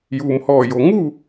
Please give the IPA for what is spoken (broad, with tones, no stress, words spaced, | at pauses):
juː˩mhɔː˧˩jo˩ ŋu˥˨